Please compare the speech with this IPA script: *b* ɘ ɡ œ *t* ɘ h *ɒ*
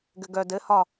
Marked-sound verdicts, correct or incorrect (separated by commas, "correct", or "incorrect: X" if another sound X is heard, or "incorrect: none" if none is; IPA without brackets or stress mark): incorrect: ɡ, incorrect: d, correct